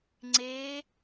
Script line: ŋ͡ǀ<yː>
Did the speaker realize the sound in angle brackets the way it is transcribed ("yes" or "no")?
no